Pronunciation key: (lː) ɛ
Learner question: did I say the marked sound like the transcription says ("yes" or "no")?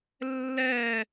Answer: yes